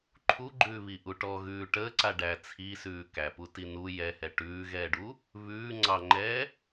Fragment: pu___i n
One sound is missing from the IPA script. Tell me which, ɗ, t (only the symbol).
t